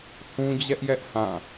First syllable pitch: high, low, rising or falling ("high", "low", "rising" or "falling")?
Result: high